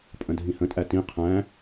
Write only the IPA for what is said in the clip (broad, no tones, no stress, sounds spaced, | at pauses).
pʼ ə̃ dʱ ĩ h ə̃ tʼ æ t ĩ qʰ æ̃